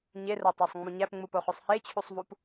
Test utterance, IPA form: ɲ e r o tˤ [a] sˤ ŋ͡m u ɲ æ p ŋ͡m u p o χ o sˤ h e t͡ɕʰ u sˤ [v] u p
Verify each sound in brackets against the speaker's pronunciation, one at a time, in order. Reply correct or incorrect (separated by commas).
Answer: incorrect, correct